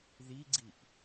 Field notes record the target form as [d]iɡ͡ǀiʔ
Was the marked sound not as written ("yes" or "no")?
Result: yes